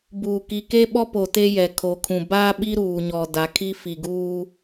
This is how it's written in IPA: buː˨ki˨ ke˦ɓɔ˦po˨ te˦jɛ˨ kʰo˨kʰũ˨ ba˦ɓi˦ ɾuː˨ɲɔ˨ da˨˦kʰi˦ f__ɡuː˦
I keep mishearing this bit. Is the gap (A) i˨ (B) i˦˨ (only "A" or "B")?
A